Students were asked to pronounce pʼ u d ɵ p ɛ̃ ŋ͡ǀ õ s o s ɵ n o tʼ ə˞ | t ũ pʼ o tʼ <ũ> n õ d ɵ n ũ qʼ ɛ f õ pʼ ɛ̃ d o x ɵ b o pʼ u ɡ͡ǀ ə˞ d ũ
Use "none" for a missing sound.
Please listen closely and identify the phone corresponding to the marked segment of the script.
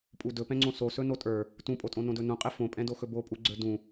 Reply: õ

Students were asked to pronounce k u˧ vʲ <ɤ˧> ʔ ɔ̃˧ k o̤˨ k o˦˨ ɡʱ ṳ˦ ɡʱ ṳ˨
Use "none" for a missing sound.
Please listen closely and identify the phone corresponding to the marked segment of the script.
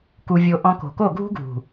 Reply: o˧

